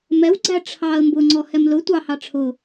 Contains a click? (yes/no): yes